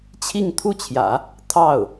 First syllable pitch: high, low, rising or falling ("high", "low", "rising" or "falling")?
falling